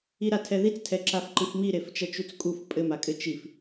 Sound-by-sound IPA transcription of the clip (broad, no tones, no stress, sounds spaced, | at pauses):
i ɾ a tʰ ɛ ð i t͡s tʰ ɛ ǁ a f ǃ ɨ f m i ɾ e f t͡ʃ ɐ t͡ʃ u t͡s kʼ u f pʼ ɘ m a kʼ ɘ t͡ʃ i f